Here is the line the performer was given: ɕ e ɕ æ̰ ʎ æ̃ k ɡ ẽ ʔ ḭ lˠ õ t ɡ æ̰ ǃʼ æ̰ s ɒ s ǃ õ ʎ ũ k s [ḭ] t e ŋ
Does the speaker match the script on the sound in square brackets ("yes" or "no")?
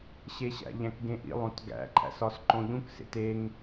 no